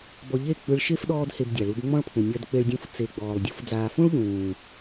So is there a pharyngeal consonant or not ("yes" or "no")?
no